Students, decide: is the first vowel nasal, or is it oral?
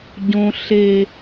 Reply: nasal